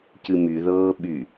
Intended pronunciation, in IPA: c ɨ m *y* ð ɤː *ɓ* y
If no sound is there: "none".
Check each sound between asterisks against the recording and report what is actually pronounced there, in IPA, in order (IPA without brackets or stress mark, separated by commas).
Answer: y, ɓ